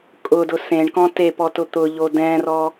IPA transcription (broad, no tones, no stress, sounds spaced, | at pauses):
kʼ ʊ d ʊ s ẽ ɳ k ɔ̃ t e p ɔ t ʊ t̪ ʊ ʎ o d ɛ̃ r ɔ